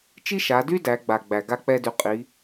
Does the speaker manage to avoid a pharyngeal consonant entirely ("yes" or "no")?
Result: yes